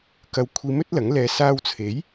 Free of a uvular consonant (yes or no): yes